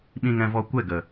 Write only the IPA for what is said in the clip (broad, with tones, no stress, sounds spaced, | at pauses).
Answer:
ɓ ĩ˧ ŋ ɛ̃˧ v ɔ˧ kʷ ɛ˦˨ ɡ ə˨